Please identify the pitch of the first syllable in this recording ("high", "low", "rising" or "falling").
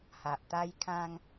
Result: low